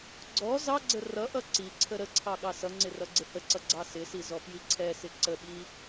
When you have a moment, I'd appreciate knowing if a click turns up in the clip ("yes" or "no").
yes